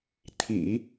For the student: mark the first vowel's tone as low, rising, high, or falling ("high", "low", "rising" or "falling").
low